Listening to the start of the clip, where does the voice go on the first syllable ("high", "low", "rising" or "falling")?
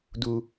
low